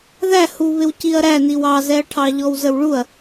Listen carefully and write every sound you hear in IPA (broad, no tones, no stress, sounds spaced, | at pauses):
ð æ h u β ɪ w c i ɐ̯ ɾ æ n i w ɑ z ɛ ɐ̯ ʈʰ ɑ ʎ ɔ w z ə w ɭ u ɐ̯